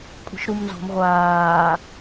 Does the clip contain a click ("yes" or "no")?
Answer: no